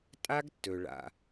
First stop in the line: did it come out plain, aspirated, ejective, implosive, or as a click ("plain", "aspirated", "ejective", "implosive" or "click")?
ejective